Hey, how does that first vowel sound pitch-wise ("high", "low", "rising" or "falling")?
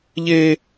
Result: high